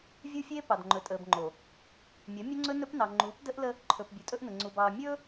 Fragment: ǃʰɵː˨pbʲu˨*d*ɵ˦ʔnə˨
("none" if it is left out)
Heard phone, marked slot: tʼ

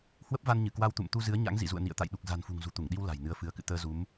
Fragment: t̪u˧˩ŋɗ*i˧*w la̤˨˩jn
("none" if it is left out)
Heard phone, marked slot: i˧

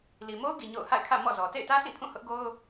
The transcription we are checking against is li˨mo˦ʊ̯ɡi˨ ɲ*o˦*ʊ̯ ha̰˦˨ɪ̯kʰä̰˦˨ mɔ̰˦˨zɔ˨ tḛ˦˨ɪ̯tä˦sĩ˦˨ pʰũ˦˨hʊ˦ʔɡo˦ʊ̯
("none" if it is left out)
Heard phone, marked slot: o̰˦˨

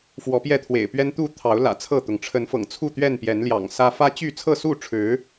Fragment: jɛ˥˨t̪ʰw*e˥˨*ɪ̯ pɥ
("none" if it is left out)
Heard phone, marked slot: ḛ˨˩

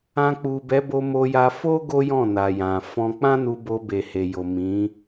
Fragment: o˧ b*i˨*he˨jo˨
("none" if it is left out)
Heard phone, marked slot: e˨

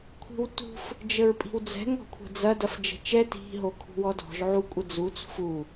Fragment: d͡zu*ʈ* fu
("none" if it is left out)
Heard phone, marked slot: t͡s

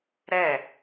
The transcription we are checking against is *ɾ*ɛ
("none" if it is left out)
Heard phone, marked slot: ɾ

